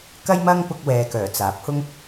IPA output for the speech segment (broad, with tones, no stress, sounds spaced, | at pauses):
k ɐ˥ j m ɐ˥ ŋ p ʊ˧ k̚ w ɛː˨ k œː˨˩ t͡s aː˨˥ p̚ h ʊ˥ ŋ